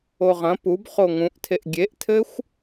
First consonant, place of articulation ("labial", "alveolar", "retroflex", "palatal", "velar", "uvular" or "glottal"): uvular